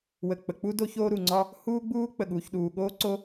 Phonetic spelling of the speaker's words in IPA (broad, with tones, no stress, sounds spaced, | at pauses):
w ə˩ k͡p ə˩ k͡p u˥ d o˥ ç oː˥ ɾ u˩ ŋ͡ǀ ɒ˥ | h uː˥ ɡ͡b uː˥ k͡p ə˩ ɠ uː˩ ç ɗ uː˩ ɠ oː˥ ǀ o˥